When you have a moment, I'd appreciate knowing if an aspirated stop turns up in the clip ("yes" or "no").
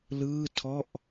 yes